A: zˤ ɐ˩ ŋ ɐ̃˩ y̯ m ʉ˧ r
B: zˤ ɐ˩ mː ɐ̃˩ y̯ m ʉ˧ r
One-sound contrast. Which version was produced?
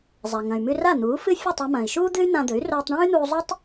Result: A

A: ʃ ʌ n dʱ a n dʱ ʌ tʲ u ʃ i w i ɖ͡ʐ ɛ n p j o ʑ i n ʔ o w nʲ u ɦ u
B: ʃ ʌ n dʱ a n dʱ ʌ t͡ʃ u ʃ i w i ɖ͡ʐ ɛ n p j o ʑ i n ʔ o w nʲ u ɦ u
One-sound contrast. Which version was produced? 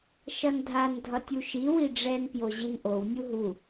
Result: A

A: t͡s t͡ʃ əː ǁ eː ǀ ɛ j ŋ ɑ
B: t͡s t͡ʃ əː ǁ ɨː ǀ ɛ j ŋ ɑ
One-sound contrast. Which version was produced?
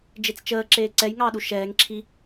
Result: A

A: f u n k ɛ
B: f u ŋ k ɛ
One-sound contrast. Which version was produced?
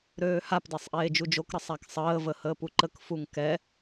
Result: B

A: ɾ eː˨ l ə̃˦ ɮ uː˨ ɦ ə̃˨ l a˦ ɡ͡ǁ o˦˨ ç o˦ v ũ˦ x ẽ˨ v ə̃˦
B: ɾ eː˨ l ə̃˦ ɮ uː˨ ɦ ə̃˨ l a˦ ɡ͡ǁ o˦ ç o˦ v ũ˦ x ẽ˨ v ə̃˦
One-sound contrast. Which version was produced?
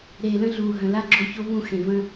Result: A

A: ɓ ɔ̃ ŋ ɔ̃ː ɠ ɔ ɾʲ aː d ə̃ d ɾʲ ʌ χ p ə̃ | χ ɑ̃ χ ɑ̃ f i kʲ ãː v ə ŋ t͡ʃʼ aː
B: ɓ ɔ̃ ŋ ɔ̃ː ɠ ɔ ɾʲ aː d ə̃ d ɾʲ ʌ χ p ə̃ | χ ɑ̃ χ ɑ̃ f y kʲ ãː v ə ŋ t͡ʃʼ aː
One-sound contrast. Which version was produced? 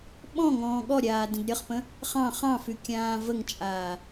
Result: B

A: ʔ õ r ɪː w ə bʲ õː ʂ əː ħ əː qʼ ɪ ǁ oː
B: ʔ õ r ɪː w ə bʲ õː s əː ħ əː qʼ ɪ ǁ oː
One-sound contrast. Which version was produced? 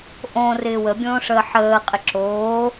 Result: A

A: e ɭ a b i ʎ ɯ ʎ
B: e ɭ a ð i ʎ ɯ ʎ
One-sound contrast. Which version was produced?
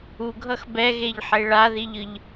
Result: B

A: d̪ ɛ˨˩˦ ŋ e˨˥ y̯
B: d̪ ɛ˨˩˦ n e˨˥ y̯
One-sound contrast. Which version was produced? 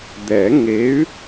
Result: A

